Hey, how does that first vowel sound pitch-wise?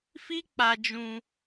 high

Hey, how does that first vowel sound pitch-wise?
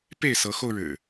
falling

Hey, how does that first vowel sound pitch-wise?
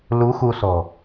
rising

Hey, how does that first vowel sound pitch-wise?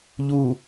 low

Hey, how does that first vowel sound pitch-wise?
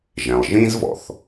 low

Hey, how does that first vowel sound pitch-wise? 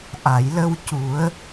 low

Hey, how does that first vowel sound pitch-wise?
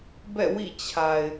falling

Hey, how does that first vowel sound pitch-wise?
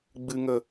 low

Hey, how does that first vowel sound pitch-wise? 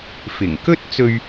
low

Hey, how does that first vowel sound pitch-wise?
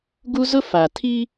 high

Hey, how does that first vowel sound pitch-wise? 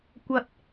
low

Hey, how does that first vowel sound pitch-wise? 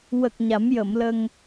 low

